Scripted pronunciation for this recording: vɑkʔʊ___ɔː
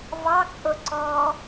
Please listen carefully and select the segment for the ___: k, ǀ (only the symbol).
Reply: ǀ